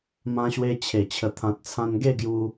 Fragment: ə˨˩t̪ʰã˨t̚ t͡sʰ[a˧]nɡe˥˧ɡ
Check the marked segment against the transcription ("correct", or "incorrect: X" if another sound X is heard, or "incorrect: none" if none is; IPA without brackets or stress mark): incorrect: ã˧